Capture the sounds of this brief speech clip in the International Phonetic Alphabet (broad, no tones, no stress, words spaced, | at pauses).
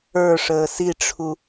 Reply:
ə˞ ʂəːsiʈ͡ʂʰu